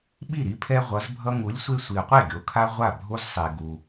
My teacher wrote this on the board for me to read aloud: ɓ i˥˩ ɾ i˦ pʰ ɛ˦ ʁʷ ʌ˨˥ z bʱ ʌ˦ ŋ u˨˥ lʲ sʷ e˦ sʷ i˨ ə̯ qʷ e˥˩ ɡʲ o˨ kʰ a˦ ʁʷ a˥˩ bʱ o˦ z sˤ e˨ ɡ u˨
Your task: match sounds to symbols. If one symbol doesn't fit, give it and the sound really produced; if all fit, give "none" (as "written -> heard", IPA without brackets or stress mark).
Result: none